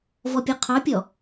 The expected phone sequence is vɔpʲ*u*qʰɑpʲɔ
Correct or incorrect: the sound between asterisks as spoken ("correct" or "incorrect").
incorrect